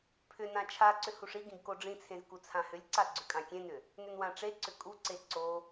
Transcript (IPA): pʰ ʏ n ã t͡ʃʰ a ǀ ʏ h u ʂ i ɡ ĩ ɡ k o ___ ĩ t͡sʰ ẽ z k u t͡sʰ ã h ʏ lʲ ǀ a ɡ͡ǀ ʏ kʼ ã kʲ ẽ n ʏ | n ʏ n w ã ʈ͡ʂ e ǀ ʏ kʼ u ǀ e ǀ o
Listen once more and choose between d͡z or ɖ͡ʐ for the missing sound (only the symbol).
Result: ɖ͡ʐ